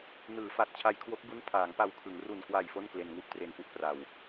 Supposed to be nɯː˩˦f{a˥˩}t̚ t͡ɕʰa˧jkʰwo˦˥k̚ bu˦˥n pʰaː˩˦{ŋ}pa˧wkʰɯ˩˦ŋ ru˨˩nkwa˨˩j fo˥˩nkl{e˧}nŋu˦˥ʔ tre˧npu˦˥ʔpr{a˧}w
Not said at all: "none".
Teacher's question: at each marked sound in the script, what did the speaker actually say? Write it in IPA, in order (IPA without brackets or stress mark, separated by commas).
a˨˩, ŋ, e˧, a˧